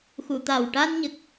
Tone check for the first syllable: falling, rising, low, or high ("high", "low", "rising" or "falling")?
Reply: low